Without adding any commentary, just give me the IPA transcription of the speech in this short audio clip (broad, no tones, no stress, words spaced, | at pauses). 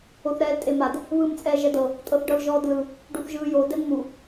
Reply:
oθɾɛːltʼemad | βɯːmt͡sʼɛːʒɛdɤ | tʼɤθɖɤlʒɔːdlɯ | ɖuθʒɯːjo dɛnmu